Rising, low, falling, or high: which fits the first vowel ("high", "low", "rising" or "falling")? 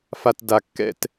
low